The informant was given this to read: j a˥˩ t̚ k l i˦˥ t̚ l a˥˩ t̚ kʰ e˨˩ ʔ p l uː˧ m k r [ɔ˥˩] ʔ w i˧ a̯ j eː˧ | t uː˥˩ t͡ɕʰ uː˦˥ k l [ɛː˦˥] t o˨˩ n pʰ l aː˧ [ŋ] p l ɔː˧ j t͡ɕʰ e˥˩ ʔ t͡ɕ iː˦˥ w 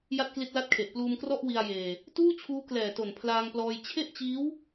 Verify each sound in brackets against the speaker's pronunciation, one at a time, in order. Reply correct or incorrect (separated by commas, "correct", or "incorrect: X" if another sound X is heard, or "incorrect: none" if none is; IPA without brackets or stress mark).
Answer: correct, incorrect: ɛː˨˩, correct